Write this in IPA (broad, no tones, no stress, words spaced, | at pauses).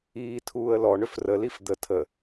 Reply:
iːtʰuːə̯lɔ ɳʏfrəlif d̪ə tʰə